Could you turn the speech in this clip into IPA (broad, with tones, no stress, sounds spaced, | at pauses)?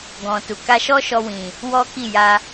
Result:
ɡ ɔ̃˨ t u˨ k a˧ ʃ ɔ˦ ʃ ɔ˧ w ĩ˨ | w ɔ˦ k i˦˨ j a˧